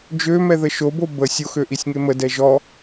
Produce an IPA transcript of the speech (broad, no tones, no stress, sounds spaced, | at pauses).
d͡ʒ ø m ɛ ð ə ʃ o b o b ə sʲ o x ø ʔ i sʲ ŋ e m ə d ɛ ʒ ɔ